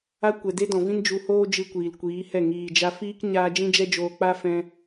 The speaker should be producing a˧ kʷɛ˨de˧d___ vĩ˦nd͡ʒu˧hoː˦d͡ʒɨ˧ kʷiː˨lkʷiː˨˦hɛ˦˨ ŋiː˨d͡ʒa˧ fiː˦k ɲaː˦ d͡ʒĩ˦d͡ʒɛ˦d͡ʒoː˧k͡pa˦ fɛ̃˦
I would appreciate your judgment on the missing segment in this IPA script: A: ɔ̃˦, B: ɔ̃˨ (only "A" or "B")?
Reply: B